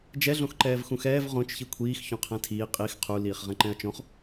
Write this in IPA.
d͡ʒ ɛ ɮ õ x ǃ ɛː v x ũ x ɛː v ʁ õ t͡ʃ ç i kʷʰ iː x ç õ qʰ ɛ̃ tʰ iː qʼ i x qʰ u l iː χ ʁ ɛ̃ ǃ ɛ̃ ɐ̯ t͡ʃ õ χ

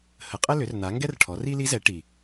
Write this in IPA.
h ə˩˥ qʼ ə˥ l ʏ˩˥ r n̪ a˩˥ ŋ ɡ ɛ˥ r ʈʰ ɔ˩˥ r i˥ l i˧˥ z ɛ˩˥ ʈ i˨˩

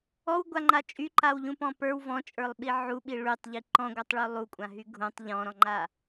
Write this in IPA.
ɔ w ɡʷ a ŋ͡ǃ a t͡ʃʼ y ǃ a w ʎ ũ p ɔ̃ p ə˞ w v ɔ̃ t͡ʃʼ ə˞ lˠ ɓ i ʕ u ɓ i ɭ y tˤ ʎ i ǃ ɔ̃ ɡʷ a tˤ ɭ u lˠ u kʷʼ ã ɦ y ɡʱ ũ tˤ ʎ ɔ̃ ɾ ɔ̃ ŋ͡ǃ a

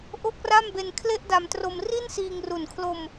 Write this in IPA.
ʔ o˥˩ k̚ r a˥˩ m b e˧ n kʰ l e˥˩ ʔ d a˧ m t r o˧ m r i˥˩ n s iː˧ ŋ r u˨˩ n kʰ l o˧ m

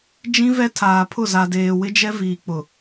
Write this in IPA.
d͡ʒ ĩ˦ v ɛ˦ tʰ aː˨ pʰ ʊ˦˨ z a˨ d eː˨ w ɪ˦ d͡ʒ ɛ˦ v iː˨ k͡p ʊ˨

